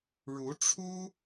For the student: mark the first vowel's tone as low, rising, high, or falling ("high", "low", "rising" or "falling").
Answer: rising